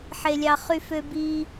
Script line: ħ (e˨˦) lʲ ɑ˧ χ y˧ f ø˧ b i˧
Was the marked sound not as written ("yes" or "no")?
yes